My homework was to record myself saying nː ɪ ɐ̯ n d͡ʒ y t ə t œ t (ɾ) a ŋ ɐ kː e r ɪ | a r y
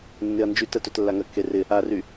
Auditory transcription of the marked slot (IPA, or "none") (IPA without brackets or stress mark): lː